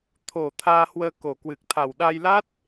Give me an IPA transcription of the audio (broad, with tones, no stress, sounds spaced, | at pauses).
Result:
t̪ʰ o˨˩ t̪ʰ aː˧ h w əː˧ k o˨˩ k w ɨ˨˩ k̚ t̪ʰ a˨˩ w ɗ a˧ j l a˦˥ t̚